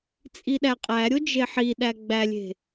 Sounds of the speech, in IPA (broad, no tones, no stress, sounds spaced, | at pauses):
t͡sʼ i ɗ æ qʼ æ ɾʲ o d͡ʒ e ħ i ɗ æ ɡ͡b æ lʲ e̤